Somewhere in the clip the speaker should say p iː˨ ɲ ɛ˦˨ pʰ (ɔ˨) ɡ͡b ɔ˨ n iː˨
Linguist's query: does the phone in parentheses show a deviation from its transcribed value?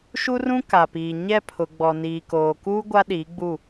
yes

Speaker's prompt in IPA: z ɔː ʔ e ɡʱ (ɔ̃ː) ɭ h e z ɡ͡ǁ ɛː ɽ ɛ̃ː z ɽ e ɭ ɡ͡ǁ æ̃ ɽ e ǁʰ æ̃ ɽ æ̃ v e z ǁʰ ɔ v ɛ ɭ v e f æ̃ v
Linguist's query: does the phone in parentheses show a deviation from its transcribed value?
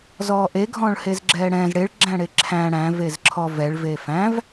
no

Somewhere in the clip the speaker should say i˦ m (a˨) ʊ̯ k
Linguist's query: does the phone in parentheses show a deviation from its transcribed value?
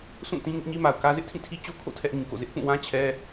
no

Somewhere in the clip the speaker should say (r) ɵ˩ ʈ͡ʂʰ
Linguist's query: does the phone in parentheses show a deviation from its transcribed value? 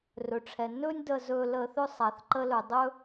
no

